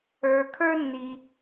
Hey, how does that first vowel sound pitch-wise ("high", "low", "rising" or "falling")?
low